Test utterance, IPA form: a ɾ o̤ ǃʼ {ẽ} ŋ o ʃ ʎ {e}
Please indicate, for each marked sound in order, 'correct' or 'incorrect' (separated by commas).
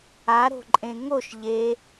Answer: correct, correct